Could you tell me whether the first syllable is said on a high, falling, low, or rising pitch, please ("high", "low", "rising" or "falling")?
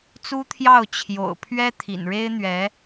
high